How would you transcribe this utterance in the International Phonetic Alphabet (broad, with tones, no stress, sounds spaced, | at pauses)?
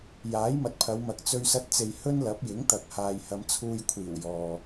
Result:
j aː˨˥ j m ɐ˨ t̚ pʰ ɐ˨˧ w m ɐ˨ k̚ t͡s ɵ˧ ɥ s ɐ˧ t̚ t͡s e˨ j h ɵ˥ n l ɐ˨˥ p̚ j ɪ˨˥ ŋ t̪ ɐ˨ k̚ h aː˨ j h ɐ˨˧ m t͡sʰ uː˧ j kʷʰ iː˨˩ w j ɔː˨